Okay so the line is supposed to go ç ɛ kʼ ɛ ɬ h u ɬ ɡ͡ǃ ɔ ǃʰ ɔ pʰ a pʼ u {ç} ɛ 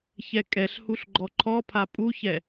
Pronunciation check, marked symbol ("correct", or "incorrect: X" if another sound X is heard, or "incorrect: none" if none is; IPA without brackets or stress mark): correct